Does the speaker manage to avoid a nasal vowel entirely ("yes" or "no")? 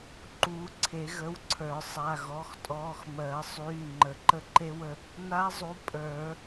yes